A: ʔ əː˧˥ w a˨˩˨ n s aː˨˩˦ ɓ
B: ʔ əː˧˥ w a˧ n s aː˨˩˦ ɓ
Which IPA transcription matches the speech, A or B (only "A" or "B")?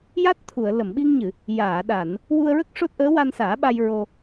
B